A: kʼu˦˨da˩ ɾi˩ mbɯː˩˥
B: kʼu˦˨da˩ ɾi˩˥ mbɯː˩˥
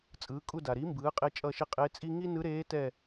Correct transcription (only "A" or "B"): B